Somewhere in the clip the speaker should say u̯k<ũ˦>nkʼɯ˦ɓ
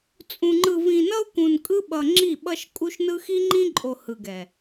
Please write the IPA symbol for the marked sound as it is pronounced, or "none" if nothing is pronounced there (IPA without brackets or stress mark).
ũ˨